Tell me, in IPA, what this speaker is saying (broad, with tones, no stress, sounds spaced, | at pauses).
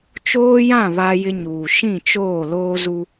t͡ʃ oː˦ j ã˦˨ β a˦ j ɪ˦ ɲ uː˨ ʃ ĩ˦˨ t͡ʃ oː˦˨ l oː˦ z u˦